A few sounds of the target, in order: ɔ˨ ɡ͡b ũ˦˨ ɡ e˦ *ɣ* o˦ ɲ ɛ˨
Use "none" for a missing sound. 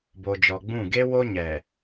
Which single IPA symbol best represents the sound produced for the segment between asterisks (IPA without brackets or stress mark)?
w